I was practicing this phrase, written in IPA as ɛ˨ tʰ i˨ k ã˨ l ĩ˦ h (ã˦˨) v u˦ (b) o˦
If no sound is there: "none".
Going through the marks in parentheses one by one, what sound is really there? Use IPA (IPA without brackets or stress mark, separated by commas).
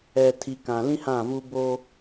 ã˦˨, b